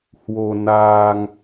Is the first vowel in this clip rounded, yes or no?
yes